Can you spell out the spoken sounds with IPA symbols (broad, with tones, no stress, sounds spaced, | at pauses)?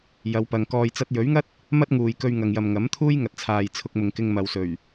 j ɐ˨˧ w p ɐ˨ ŋ k ɔː˨ j t͡s ɐ˧ t̚ j ɵ˨˥ ɥ ŋ ɐ˥ t̚ | m ɐ˥ t̚ ŋ uː˨ j k ɵ˧ ɥ ŋ ɐ˨ ŋ j ɐ˨ m ŋ ɐ˨˥ m t̪ʰ uː˥ j ŋ ɐ˨ t̚ t͡sʰ aː˨ j t͡sʰ ʊ˧ k̚ m ʊ˨ ŋ k ɪ˧ ŋ m ɐ˨ w s ɵ˨˩ ɥ